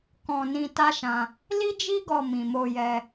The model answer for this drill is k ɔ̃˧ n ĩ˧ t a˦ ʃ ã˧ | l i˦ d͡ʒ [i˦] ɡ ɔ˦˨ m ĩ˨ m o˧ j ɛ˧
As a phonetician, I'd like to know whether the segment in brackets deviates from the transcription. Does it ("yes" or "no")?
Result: no